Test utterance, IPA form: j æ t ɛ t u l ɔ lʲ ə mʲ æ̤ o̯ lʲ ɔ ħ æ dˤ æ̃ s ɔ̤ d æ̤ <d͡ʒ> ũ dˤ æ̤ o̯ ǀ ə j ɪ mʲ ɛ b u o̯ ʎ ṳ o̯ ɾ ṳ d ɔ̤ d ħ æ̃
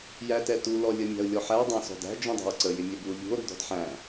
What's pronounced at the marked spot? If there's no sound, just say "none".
d͡ʒ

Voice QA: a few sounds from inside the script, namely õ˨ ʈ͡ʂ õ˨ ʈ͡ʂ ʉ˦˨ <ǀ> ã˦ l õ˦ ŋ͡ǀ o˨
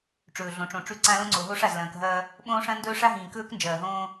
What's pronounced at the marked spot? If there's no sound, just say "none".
ǀ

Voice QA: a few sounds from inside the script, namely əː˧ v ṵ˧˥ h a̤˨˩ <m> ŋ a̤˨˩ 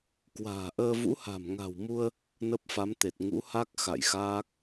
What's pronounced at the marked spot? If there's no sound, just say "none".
m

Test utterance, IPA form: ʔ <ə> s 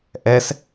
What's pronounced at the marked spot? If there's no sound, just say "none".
ɛ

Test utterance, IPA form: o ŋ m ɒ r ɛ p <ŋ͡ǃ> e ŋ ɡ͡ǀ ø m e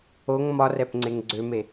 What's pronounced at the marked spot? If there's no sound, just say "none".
ŋ͡ǀ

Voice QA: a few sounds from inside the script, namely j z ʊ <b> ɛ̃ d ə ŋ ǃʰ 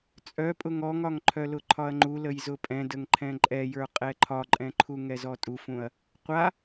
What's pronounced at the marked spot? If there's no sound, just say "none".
pʼ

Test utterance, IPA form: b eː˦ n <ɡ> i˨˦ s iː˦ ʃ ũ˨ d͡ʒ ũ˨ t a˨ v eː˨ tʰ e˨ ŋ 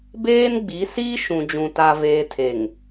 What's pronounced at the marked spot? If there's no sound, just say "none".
ɡ͡b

